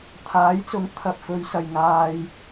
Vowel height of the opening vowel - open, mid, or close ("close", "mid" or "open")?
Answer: open